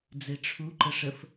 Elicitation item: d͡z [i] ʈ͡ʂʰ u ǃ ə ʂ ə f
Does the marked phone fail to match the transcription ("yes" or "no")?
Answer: yes